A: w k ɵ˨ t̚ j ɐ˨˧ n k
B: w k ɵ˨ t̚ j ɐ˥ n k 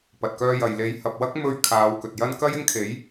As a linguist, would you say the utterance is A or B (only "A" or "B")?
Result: B